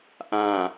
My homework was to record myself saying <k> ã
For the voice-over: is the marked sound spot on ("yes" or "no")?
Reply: no